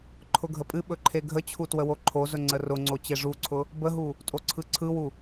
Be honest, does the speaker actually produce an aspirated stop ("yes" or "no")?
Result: yes